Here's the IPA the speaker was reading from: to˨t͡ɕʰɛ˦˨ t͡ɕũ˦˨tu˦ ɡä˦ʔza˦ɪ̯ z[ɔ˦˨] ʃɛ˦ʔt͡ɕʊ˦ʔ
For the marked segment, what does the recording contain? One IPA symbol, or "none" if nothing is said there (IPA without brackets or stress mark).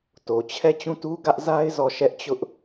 ɔ˦˨